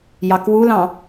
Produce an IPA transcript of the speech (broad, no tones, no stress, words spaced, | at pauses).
jɑkwulɑ̃